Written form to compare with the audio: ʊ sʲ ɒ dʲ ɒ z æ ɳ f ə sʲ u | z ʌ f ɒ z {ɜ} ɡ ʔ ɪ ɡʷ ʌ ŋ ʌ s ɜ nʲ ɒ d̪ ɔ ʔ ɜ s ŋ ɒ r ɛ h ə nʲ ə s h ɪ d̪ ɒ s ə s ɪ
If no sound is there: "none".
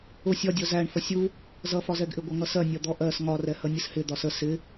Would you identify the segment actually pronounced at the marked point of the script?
ɛ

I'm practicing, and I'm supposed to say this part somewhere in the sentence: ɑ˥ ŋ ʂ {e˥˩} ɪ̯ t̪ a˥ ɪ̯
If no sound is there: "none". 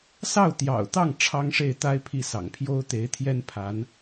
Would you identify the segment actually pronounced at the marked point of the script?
e˥˩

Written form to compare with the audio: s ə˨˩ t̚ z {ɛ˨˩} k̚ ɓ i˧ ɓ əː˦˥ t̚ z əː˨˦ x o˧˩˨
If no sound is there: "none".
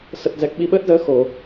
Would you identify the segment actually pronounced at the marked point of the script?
ɛ˨˩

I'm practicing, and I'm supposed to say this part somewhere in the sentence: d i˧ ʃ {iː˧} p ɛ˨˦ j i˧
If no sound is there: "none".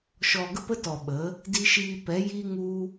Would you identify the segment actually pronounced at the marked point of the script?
iː˧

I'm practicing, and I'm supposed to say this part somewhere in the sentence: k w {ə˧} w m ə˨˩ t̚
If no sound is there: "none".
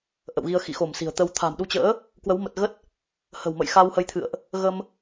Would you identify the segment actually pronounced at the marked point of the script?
ə˨˦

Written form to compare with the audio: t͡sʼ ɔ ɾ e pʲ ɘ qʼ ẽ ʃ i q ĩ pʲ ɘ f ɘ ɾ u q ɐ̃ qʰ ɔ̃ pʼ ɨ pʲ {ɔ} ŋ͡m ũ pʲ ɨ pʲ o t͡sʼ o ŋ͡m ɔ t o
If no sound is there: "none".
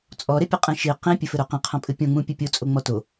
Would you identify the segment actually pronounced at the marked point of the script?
ɔ̃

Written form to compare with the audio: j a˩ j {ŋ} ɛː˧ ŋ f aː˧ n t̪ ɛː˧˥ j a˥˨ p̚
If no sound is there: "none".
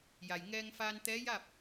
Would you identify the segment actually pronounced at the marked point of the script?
ŋ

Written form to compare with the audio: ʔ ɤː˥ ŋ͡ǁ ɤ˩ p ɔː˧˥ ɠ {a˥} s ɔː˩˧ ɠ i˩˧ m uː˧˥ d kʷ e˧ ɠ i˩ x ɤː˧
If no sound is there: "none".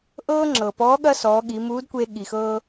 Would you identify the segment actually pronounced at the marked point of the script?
ɐ˥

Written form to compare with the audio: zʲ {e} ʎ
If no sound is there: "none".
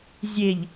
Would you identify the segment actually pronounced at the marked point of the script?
e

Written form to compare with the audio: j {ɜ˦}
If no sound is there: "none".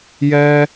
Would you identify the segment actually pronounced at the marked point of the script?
ɛ˦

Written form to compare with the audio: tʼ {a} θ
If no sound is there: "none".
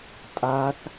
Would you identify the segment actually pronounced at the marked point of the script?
a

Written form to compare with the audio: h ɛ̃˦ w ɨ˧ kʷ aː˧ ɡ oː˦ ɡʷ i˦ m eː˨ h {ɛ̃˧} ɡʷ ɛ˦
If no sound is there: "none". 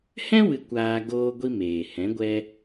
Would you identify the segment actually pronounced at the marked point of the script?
ɛ̃˨˦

